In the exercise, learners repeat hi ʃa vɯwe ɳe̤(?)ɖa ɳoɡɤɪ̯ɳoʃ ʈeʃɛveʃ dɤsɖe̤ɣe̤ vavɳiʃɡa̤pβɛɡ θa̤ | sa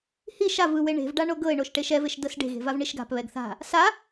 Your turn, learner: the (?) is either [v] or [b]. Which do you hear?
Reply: v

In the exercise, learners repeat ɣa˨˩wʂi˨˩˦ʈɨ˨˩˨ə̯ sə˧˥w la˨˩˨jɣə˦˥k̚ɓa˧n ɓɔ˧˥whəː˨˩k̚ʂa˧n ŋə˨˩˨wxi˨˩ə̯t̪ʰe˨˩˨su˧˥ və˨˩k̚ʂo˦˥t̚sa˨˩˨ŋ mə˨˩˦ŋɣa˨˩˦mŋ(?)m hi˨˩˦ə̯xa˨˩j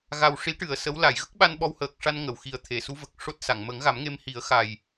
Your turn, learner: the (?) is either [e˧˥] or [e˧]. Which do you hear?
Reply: e˧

